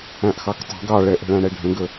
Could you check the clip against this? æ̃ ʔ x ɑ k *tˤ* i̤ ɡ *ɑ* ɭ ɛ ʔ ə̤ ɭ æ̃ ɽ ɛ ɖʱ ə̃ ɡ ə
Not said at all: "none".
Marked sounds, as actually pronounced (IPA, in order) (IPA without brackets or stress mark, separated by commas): tˤ, ɑ